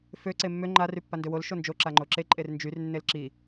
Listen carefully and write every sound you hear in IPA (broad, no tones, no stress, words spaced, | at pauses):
fø ǀemːø ŋ͡ǃa rypːandøwol ʃond͡ʒo ǁaŋ͡ǃoǁe ǃʼernd͡ʒyr nːelǁi